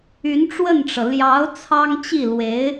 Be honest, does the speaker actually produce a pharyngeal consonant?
no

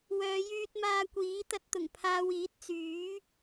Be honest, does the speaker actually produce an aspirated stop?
yes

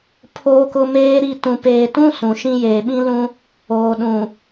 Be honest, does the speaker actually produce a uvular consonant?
no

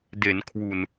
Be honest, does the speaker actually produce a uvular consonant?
no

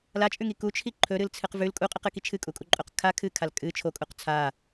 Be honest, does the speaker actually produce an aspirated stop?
yes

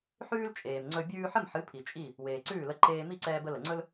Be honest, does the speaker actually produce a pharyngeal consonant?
yes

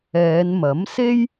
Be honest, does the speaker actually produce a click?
no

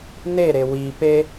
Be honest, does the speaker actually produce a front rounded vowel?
no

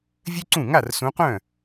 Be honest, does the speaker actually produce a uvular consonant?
yes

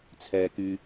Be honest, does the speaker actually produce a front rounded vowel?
yes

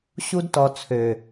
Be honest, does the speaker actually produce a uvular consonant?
no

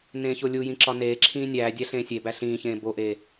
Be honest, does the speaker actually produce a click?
yes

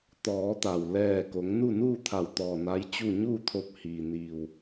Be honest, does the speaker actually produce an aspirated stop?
yes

